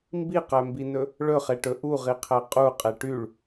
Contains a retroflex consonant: yes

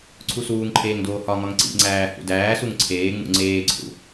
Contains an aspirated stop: yes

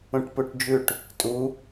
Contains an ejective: yes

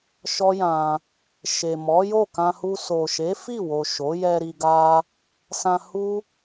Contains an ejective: no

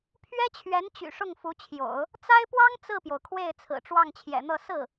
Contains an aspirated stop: yes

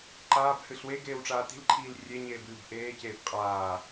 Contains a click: yes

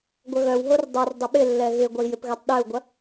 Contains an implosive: yes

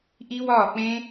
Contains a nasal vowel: yes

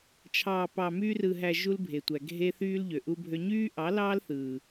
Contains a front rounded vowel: yes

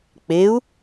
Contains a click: no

